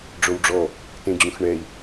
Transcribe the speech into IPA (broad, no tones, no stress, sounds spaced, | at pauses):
ɖ͡ʐ o w ɖ͡ʐ ɔ | t ẽ d͡ʑ ũ x ɳ ɛ i̯